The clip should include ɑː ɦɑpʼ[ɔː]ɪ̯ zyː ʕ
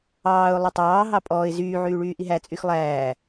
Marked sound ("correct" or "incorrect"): correct